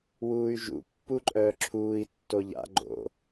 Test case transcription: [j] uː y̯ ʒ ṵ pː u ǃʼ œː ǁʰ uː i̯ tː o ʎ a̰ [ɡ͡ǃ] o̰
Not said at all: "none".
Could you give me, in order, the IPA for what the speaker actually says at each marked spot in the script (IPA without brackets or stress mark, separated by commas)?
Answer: w, ɡ͡ǃ